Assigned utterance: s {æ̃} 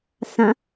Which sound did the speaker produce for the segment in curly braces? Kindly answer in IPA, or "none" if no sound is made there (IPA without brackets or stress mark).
ã